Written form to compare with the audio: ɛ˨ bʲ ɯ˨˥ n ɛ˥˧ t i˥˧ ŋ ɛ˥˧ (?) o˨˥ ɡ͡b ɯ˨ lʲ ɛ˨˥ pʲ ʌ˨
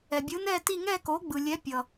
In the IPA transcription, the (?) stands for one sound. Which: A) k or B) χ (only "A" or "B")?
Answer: A